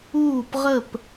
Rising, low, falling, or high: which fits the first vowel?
falling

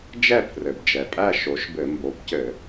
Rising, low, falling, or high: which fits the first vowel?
falling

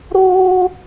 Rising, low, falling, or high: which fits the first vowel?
high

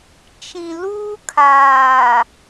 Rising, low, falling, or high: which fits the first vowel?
low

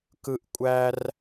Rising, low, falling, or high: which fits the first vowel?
high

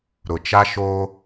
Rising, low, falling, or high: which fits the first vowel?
low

